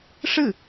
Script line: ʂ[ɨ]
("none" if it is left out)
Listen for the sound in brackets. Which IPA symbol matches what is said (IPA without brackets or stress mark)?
ɨ